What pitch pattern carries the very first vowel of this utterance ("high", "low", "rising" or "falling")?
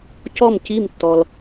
falling